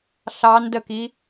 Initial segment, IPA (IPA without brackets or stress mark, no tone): ɬ